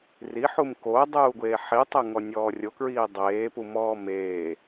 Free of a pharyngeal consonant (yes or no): no